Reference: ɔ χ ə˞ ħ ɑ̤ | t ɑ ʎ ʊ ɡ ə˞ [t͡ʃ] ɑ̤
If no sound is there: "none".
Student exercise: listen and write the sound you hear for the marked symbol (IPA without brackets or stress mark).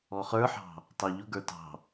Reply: t